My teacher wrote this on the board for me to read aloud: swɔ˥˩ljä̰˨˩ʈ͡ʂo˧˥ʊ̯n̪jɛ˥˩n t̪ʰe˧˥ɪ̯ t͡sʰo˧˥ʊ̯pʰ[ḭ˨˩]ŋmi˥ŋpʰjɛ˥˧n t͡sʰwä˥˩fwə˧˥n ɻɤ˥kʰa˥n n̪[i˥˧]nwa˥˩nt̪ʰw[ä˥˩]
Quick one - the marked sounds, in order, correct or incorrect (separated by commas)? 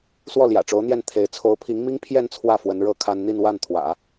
incorrect, correct, incorrect